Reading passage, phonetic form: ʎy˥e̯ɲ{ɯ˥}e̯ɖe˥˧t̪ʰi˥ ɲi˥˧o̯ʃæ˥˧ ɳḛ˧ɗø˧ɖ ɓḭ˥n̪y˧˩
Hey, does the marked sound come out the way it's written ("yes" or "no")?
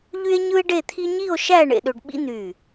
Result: yes